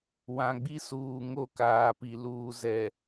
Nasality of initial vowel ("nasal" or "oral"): nasal